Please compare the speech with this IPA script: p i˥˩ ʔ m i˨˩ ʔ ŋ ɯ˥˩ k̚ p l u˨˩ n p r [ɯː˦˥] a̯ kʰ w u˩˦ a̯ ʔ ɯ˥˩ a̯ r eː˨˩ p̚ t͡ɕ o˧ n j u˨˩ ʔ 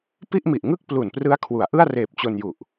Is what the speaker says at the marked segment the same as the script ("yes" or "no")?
no